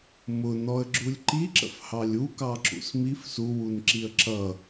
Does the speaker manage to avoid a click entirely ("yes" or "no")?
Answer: no